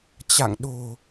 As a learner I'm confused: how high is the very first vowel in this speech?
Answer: low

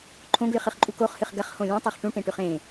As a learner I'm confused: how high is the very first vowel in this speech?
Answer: mid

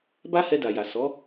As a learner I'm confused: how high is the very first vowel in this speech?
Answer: low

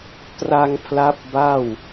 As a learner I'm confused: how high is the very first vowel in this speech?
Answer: low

